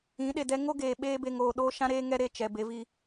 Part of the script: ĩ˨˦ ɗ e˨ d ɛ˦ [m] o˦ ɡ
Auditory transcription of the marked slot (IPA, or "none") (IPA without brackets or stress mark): ŋ